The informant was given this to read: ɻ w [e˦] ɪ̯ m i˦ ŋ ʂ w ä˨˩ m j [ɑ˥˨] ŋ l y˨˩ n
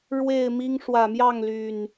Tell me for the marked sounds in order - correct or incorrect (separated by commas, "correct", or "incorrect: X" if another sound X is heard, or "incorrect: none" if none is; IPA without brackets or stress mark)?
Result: incorrect: e˥˨, correct